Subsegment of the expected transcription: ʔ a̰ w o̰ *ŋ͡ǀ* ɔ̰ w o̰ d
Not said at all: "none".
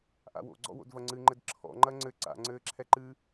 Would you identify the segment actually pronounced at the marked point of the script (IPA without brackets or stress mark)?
ɡ͡ǀ